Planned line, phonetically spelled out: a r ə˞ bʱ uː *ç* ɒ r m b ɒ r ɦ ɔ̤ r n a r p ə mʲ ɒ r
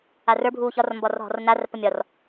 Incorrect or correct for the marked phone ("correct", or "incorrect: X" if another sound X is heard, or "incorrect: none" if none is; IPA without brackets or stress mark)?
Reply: correct